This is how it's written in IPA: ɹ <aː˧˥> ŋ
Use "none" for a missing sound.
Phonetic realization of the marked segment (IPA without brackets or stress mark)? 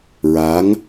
aː˧˥